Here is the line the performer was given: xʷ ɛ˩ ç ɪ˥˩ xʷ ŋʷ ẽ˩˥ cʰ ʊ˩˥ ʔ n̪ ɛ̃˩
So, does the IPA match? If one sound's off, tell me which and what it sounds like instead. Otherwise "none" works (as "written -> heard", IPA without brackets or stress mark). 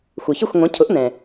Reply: none